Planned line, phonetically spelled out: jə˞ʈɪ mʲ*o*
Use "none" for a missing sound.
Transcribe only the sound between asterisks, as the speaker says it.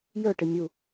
u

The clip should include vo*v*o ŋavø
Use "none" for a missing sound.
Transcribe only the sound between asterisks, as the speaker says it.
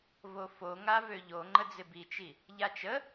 f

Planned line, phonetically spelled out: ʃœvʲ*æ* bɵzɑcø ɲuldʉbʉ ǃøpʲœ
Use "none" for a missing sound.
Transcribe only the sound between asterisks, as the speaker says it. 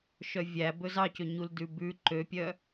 æ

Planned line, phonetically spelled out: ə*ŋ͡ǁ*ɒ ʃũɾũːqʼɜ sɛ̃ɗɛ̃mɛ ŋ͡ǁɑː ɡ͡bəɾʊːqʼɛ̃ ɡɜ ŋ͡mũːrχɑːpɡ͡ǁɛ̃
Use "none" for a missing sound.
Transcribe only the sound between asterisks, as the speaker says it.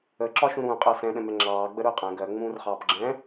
ǁ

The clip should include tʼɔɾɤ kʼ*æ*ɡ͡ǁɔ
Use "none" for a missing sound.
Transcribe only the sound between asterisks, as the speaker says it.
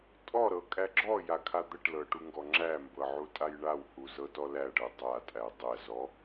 æ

